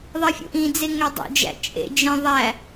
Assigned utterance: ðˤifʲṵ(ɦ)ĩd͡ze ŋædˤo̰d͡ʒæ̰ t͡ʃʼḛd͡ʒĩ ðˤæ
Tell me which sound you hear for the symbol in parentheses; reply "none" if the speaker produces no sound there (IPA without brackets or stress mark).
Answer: ʔ